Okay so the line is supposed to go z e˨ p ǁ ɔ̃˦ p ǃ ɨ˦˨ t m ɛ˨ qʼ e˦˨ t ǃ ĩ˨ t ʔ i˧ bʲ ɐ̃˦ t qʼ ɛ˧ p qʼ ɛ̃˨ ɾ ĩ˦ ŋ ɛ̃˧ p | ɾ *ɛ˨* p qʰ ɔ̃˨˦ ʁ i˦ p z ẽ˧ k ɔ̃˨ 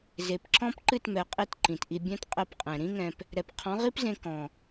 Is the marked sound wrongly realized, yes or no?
no